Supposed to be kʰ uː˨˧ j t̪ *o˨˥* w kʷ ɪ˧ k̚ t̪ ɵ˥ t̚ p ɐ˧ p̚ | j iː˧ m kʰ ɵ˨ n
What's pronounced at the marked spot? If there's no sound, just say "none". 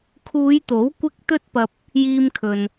o˨˥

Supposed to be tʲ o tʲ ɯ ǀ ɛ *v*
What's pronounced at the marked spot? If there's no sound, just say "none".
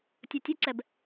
b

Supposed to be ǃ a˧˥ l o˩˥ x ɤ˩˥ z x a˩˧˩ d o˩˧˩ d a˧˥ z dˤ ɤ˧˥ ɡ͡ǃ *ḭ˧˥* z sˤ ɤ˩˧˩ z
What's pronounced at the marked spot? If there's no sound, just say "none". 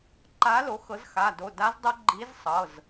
i˧˥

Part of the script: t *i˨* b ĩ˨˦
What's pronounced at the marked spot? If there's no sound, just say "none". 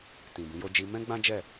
ĩ˨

